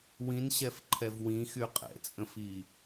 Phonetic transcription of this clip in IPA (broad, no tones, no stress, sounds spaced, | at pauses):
w ĩ n ɕ ɛ f ǃʰ ɛ v w ĩ x y qʼ ɛ̰ t͡sʼ ə̃ f i